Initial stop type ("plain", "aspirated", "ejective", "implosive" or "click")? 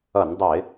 plain